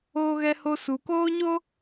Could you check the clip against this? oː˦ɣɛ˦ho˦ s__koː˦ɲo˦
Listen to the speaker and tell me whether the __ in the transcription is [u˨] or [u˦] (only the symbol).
u˨